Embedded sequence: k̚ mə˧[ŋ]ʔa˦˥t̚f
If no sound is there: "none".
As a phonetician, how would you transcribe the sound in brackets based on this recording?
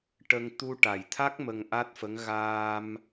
ŋ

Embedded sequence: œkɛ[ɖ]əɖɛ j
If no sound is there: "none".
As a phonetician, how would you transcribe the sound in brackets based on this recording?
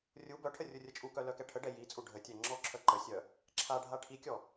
ʈʰ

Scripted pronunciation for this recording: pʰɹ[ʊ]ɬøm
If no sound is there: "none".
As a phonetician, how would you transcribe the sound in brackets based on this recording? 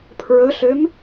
ɵ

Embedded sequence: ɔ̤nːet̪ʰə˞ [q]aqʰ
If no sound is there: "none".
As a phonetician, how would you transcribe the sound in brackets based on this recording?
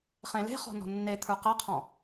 q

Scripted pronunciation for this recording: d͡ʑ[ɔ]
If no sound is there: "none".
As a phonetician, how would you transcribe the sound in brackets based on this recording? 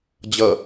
ʌ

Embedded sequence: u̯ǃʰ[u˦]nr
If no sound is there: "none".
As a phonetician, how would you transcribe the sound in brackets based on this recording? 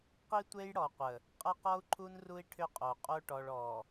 u˦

